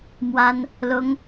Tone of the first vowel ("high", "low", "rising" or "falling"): high